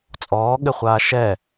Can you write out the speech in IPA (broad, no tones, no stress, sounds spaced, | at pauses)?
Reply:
t͡sʼ ɔː ɠ ɘ χʷ aː ʃ ɛ